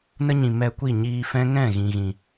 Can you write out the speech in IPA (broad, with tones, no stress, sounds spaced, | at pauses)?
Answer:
n ə˦ ɲ ĩ˨ m ɛ˧ kʷ i˦˨ ɲ iː˧ f ɛ̃˦ ŋ ɛ̃˦˨ ɣ ĩ˨ ɣ ĩ˨